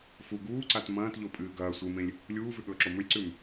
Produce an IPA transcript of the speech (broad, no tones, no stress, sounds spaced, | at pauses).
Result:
f u ɡ uː ǀ a t m ɐ̃ː t ʎ o pʼ ɨː ɡ ɐː sʷ ɨ m ẽ lʲ | lʲ uː v ʉ ɠ ɵː ǁ o m ɵ lʲ ǀ ʉ m